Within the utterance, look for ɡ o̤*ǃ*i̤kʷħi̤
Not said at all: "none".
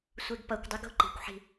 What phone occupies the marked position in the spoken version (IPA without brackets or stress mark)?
ǃ